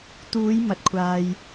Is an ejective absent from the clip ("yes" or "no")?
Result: yes